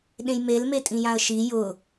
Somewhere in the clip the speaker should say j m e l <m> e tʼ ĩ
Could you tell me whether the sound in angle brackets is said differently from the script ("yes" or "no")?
no